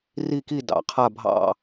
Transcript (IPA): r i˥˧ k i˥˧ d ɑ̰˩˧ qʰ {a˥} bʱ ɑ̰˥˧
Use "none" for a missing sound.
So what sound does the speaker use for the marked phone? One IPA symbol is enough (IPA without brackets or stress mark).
a˥˧